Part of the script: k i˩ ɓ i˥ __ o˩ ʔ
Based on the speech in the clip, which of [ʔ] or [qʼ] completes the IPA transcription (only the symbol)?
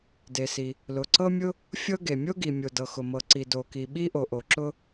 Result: ʔ